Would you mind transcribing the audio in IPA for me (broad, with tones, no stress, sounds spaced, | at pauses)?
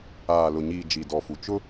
aː˨ l ʊ˨ ɲ iː˨ d͡ʒ i˨ d ɔ˨ f u˨ t͡ʃ ʊ˦